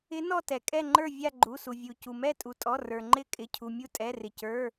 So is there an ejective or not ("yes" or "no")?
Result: yes